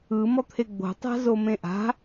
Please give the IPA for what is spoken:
ɯ mɔt̪ʰeɡ͡bo̤ tˤa̤zomẽʔa̤

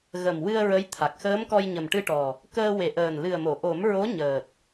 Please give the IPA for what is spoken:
ɣə˨˩mwɨ˧ə̯ ɹə˧˥jt̪ʰa˨˩k̚ xəː˧˥mkɔ˧jɲə˨˩mʈɨ˧ ʈɔ˨˩ | kəː˧we˨˩ ʔəː˨˩nlɨ˨˩ə̯mo˨˩˨ ʔo˨˩˦mɹo˧˥ ɲəː˨˩t̚

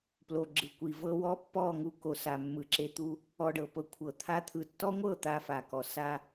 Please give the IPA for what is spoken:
plo˨ ɡ͡ǁɯ˨kʷi˨vɤ˧ wɔ˦pːɔ˦˨ŋu˧ko˨ sa˨mːɯ˨ǁe˧t̪u˧ | ɔ˧ɖɤ˨ pɤ˧kʷʰɤ˨t̪ʰa˦t̪ʰɯ˧ tːɔ˦ŋʷɤ˦˨ t̪a˧fa˨kɔ˨ sa˧

